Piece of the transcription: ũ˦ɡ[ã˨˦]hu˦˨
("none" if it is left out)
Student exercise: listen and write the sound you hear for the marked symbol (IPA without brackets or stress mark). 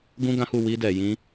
ã˦